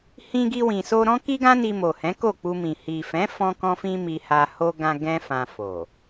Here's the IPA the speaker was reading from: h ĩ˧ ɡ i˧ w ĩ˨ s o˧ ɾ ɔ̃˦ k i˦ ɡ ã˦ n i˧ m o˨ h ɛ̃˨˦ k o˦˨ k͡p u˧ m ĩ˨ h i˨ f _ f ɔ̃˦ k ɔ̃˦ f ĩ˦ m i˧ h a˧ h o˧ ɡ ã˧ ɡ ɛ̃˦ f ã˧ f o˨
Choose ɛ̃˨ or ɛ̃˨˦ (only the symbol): ɛ̃˨˦